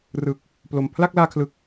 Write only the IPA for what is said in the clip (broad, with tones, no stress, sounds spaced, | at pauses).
r ɯ˨˩ k̚ | p l o˨˩ m pʰ l a˥˩ k̚ l aː˧ kʰ l ɯ˨˩ k̚